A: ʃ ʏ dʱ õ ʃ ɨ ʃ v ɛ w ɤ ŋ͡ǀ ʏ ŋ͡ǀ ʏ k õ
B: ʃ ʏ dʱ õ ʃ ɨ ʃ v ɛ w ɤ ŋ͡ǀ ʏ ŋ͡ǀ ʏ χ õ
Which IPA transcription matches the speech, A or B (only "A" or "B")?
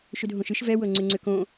A